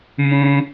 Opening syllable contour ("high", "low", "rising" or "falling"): high